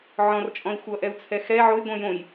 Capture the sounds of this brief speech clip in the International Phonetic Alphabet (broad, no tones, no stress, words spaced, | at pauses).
ʕɔ̃rt͡ʃʼɔ̃i̯ xʷʌʔɛu̯t͡sʰɛ xɛ ʕojɡʷɛ̃ jõj